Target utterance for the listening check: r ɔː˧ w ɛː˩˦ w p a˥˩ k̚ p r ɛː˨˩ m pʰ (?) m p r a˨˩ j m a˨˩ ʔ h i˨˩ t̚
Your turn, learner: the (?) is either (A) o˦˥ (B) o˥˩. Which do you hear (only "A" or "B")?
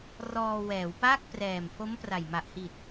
A